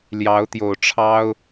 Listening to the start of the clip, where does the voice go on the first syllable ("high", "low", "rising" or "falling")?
rising